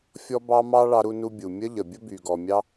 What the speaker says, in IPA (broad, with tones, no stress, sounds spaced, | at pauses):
fʲ ɔ˦ b ɑ˦ m ɑ˦ ɭ ɑ˦ ɾ u˦ n u˦ bʲ u˩ mʲ ə˦ ʎ ə˩ bʲ ə˦ b y˩ ɡ ɔ˩ mʲ ɑ˦